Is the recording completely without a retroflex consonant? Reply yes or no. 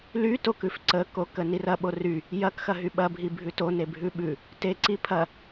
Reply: yes